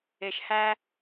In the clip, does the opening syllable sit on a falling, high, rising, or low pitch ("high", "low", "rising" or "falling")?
low